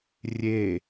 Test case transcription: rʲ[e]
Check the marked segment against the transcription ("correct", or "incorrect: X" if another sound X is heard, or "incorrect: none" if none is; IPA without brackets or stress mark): correct